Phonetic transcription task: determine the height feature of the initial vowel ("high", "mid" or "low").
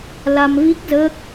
low